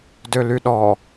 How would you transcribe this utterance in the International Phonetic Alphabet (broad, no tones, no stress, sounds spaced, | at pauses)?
d ø l y ɗ ɔ